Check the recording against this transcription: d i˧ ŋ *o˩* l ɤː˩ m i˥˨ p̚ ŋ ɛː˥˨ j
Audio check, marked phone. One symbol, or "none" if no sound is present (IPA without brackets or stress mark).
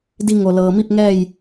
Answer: o˩